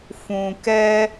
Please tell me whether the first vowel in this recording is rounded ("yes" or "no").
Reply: yes